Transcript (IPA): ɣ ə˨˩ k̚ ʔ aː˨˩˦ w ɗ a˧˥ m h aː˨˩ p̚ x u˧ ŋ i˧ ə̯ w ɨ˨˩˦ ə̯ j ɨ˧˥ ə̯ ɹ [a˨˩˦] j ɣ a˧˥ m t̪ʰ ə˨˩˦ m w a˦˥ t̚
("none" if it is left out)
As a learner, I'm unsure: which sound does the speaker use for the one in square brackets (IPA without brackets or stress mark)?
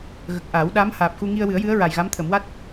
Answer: a˨˩